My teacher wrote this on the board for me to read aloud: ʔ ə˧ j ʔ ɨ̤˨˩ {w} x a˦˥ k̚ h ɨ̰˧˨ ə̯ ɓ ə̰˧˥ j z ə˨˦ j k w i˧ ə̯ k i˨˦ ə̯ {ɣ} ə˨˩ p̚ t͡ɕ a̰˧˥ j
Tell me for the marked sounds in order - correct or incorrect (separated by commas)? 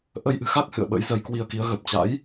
incorrect, correct